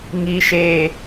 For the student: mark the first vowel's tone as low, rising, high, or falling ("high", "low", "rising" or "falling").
low